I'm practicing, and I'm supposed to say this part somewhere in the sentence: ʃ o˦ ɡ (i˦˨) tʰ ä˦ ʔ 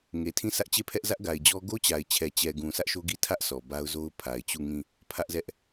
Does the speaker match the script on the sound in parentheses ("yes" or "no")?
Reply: yes